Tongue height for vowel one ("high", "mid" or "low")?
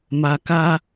low